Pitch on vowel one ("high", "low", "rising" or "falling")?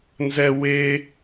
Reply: high